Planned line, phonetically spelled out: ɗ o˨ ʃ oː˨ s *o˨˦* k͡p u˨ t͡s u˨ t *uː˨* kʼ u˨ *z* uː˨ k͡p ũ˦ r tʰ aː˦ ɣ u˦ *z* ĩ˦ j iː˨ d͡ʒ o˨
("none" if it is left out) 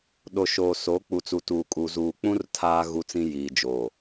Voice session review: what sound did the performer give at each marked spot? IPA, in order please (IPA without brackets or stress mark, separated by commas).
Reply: o˨˦, uː˨, z, t͡s